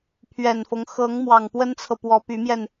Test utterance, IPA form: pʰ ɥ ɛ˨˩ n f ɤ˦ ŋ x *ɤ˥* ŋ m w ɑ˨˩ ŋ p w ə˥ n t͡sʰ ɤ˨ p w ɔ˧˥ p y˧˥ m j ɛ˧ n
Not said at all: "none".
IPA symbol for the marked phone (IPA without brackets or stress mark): ɤ˧˥